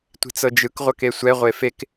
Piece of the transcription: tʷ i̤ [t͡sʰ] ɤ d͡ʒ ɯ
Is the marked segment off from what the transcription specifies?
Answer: yes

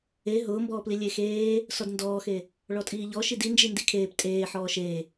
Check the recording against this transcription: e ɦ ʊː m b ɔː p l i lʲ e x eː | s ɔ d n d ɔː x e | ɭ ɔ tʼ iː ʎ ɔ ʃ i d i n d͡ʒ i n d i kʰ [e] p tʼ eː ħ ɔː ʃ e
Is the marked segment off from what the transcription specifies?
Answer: yes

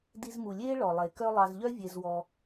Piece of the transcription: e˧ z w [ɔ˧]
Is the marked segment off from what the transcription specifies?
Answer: no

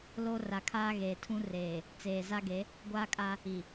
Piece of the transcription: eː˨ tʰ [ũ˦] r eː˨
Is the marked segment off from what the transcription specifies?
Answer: no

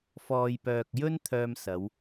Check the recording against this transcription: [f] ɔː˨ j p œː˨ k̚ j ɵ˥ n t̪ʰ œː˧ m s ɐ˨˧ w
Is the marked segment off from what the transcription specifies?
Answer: no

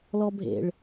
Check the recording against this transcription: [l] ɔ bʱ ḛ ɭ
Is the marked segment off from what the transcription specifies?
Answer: no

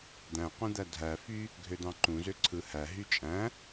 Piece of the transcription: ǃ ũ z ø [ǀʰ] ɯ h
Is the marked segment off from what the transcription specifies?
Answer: no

